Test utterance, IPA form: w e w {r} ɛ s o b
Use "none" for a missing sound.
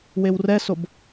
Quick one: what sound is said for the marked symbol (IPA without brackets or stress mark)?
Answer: r